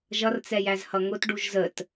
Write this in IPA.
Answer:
ʒ ʌ r t͡s ɛ j æ z h ʌ ŋ ʊ t ɖ u ʒ z ə t

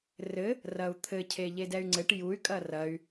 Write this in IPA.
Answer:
r ɘ | r ɐ u̯ t̪ʰ ɘ cʰ e ʎ e d ɛ y̯ ŋ͡ǀ ɘ ʈ j u y̯ kʼ ɐ r ɐ y̯

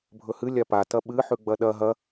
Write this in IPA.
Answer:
bʱ ɵ h ɨ lʲ a p a t ɐ ɓ ɨ ħ ʉ ɡ͡b ɐ ɗ ɐ ɦ ɐ

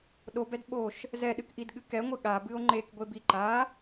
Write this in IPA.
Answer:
ɗ o b ɛ d ɓ o ʃ | z ɛ ɗ ɨ k ʔ i d ɠ ɨ k ɛ ŋʷ ɨ ɠ a b ɨ o̯ ŋ͡ǃ e k ɡʷ e b i ǃ a

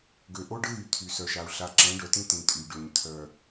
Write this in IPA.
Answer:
ɡ ø˨ ʔ o˦ ɖ ə˦ ɣ y˨ t̪ʰ y˨ s œ˨ ʃ a˨ u̯ ɬ a˨ ǁ ɛ̃˨˦ ɖ œ˨ t ĩ˦ t ĩ˨ tʼ y˨ ɖ ø˨ ɲ t̪ʰ œ˨

